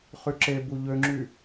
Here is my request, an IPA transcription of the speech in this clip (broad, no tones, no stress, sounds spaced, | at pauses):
χ y ǁ e b u ʎ ø ŋ͡ǁ y